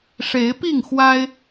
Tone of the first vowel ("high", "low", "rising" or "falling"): rising